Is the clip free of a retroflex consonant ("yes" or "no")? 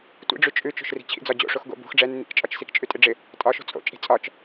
no